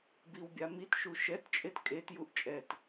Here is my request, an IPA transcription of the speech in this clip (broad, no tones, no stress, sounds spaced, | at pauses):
b i w bʲ a m i t ʃ u ʃ ɛ t t͡ʃʼ e t kʼ e t j u ʔ t͡ʃʼ ɛ t